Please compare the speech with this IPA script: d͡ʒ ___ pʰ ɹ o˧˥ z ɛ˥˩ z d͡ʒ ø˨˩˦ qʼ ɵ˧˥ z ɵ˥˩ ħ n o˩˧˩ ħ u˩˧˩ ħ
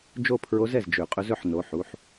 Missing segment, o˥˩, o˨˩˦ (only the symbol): o˥˩